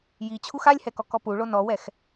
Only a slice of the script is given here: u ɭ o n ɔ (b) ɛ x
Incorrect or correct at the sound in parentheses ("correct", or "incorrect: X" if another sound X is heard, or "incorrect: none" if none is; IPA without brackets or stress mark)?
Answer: incorrect: w